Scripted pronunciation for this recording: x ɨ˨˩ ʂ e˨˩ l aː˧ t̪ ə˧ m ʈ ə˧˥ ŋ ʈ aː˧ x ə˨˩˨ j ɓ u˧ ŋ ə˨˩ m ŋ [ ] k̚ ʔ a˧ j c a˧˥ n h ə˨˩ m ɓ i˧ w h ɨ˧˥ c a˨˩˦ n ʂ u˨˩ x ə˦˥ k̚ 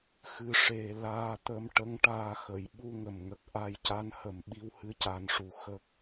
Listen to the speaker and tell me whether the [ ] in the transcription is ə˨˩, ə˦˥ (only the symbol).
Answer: ə˨˩